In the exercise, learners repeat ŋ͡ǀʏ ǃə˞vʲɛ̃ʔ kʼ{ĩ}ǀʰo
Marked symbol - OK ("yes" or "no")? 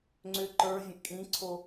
yes